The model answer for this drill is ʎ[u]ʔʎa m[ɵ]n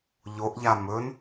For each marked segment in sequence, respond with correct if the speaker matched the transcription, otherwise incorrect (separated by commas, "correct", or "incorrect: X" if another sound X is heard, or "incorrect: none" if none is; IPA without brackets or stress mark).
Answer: incorrect: o, correct